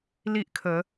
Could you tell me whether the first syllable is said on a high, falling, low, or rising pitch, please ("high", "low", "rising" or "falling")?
high